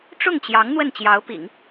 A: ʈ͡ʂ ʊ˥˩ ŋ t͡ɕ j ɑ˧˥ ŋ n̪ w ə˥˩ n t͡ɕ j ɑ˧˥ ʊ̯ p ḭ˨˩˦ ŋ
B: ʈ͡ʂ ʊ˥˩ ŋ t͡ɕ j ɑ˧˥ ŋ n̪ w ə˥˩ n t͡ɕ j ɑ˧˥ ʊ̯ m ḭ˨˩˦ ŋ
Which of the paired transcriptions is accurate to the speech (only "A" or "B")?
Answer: A